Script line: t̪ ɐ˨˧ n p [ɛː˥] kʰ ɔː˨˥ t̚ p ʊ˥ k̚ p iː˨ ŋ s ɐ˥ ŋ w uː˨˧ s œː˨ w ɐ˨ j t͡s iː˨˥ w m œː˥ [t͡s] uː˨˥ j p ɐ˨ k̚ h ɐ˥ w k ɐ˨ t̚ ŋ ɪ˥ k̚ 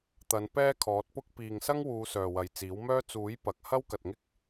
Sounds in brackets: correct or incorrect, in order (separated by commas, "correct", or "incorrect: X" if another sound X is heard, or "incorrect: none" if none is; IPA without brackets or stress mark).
correct, correct